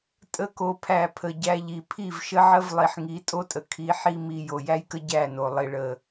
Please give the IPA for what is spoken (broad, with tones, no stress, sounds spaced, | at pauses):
tʼ ə˧ k o˨ pʰ æ˨ pʰ ə˨ ɟ æ˧ ʎ i˨ pʰ i˦˨ v ʃ ə˦ ʕ ə˦ v lˠ i˨ ħ ŋ i˨˦ tʼ o˦ tʼ ə˨ kʰ i˨ ħ i˧ m i˨ j o˨ j æ˦ j k ə˦ ɟ æ˦˨ n o˨ lˠ i˨ ɭ ə˨